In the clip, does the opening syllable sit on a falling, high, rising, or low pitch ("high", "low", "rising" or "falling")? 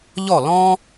falling